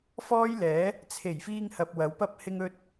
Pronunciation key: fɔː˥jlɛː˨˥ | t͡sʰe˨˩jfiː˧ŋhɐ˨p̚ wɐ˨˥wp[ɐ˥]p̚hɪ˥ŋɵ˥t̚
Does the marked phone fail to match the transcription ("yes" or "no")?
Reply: no